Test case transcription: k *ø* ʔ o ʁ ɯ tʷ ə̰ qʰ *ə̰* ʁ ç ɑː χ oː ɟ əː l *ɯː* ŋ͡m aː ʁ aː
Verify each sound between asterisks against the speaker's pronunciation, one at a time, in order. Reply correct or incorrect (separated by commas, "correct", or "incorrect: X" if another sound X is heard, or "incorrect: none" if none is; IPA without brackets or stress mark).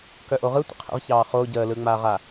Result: incorrect: œ, correct, correct